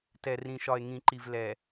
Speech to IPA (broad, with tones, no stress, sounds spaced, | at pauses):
t ɛ˨ r ĩ˨ ʃ ɒ˨ e̯ ŋ ĩ˨ ǃ i˨ v l ɛ˨